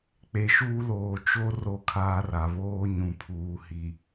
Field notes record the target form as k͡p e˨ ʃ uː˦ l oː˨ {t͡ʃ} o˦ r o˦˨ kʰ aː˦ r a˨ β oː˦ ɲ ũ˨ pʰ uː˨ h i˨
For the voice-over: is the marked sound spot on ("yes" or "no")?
yes